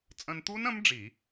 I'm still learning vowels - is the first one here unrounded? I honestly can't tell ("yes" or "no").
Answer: yes